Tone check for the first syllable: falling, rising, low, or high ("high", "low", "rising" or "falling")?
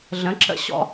rising